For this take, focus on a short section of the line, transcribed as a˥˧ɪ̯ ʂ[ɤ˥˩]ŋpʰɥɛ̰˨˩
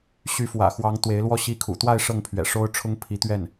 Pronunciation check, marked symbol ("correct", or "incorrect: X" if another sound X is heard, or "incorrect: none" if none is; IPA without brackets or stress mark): correct